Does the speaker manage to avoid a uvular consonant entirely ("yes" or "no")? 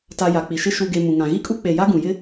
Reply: yes